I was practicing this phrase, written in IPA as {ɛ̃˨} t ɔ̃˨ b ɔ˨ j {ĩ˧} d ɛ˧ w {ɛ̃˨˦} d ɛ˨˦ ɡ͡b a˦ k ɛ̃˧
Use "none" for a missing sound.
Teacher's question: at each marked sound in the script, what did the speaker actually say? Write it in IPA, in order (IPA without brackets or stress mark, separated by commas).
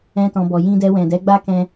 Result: ɛ̃˧, ĩ˧, ɛ̃˨